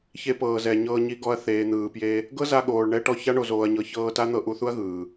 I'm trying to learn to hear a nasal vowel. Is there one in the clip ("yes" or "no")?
no